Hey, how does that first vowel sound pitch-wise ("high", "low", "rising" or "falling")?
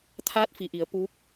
rising